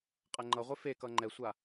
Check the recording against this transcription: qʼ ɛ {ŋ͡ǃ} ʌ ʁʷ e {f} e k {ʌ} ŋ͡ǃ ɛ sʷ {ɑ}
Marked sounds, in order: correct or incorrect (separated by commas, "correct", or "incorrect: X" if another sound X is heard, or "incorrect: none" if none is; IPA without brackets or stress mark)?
correct, correct, correct, incorrect: a